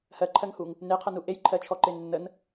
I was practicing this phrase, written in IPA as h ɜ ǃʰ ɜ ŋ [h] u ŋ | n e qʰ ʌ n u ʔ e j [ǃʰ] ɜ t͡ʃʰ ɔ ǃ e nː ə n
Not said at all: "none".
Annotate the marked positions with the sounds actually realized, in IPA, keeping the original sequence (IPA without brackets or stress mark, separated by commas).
h, ǃʰ